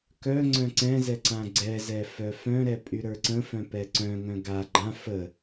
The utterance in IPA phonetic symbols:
k œ ŋ͡ǀ œ̃ ǀ ɛ̃ z ɛ ǀ ã ɡ͡ǀ ɛ z ɛ f œ f œ̃ ɾ ɛ pʼ y ɾ ə˞ ǀ ə̃ f œ̃ p ɛ ǀ œ̃ ŋ œ̃ ɡ a ɡ͡ǃ ã f ə

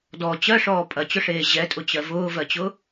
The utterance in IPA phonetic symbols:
d ɔ t͡ɕ ɜ ʂ ɔː pʼ ɐ t͡ɕ ʊ ʂ eː ʑ ɛ tʼ ʊ t͡ɕ ɜ v ʊː v ɜ t͡ɕ ʊ

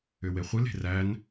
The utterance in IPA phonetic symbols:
ʏ w e χʷ ɨ l e̤ r æ n

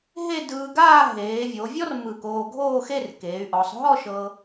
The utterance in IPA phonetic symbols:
ɦ e˥˧ d ɯː˧ ɡ aː˥˧ ɦ eː˩˧ vʲ o˩˧ vʲ ɔ˥ r m ɯ˧˩ k oː˧ ɡʱ oː˥˧ x e˥˧ r k eː˩˧ y̯ ʔ ɔ˩˧ sˤ ɦ ɔ˥˧ ʃ ɤ˧

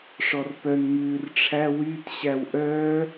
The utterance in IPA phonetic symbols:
ʂ ɔ r p œ n m ʉː r ʈ͡ʂʰ æ w y t ɕ æ w ʔ œː

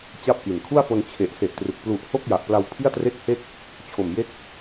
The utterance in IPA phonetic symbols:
t͡ɕ a˥˩ p̚ ʔ i˨˩ n kʰ u˥˩ a̯ f o˧ n t͡ɕʰ e˨˩ ʔ s e˨˩ ʔ t r ɯ˨˩ k̚ p l u˨˩ ʔ h o˥˩ k̚ j a˨˩ ʔ p l a˧ w pʰ i˥˩ a̯ t r e˥˩ k̚ h e˥˩ k̚ | t͡ɕʰ o˨˩ m j e˥˩ k̚

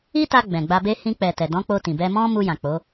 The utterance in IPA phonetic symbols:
i˦ t a˧ ɡ͡b ɛ̃˨ ɡ͡b a˧ b e˦ h ĩ˧ k͡p ɛ˨ t ɛ˨ d ɔ̃˨˦ k͡p o˧ t ĩ˨ b ɛ˧ m ɔ̃˦ m u˧ j ã˨ k͡p o˨˦

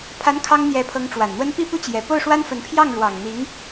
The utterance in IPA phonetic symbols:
pʰ a˧˥ n kʰ ɑ˥ ŋ n̪ j ɛ˧˥ pʰ ɤ˧˥ ŋ ʈ͡ʂ w a˨˩ n n̪ w ə˥ n p i˥˩ p u˥ t͡ɕ j ɛ˨˩ p o˥˩ ʊ̯ ʂ w a˥ n f ə˧˥ n pʰ j ɑ˥˩ ŋ ɻ w ɑ˨˩ ŋ n̪ i˧˥ ŋ

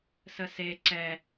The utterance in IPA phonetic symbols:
s ə s e ǀ ɛ

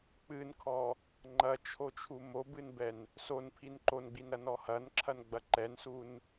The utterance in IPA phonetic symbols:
k͡p ɨ n kʰ ɔ | ŋ͡ǃ ɐ t͡ʃʰ o t͡ʃʰ u m o b ɨ n b ɛ n | s o n pʰ i n ǃ o n ɡ͡b i n ɾ ɐ n ɔ h ɐ n ǁʰ ɐ n ɡ͡b ɐ ǃ ɛ n s u n

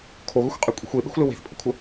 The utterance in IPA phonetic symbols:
kʰ o ɣ ɵ xʷ qʼ e kʷʼ i̤ xʷ e ɓ e̤ xʷ l ɘ w e̤ θ pʼ ə kʷʰ ə

